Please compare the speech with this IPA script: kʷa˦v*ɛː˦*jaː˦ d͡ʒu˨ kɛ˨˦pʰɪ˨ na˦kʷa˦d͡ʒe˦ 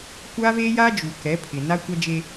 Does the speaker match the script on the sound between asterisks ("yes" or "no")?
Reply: no